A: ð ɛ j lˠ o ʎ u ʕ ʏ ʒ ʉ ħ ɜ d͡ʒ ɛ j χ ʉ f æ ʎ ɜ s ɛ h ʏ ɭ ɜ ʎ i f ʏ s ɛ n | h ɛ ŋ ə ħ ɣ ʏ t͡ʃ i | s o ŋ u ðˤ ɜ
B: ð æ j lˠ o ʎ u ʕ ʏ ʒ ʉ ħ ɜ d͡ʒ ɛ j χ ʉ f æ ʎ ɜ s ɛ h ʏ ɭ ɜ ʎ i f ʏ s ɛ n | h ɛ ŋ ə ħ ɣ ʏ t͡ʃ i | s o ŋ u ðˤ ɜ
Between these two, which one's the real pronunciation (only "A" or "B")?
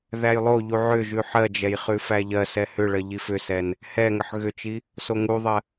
B